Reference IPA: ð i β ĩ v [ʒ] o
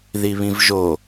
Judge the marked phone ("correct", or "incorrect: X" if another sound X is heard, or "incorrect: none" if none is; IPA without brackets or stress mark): correct